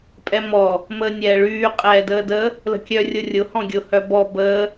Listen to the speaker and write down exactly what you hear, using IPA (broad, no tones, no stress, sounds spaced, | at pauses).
pʼ ɛ m ɔ | m əː nʲ ɛː ɭ yː qʼ ɛː d əː d ə | l ə̤ kʲ œ rʲ ʊ rʲ ʊ h ɔ̃ ɡʲ ʊ h œ b ɔ b əː